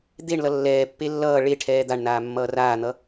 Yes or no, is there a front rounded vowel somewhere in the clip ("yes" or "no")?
no